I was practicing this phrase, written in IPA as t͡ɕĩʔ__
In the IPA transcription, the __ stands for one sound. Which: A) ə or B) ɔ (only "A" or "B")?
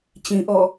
B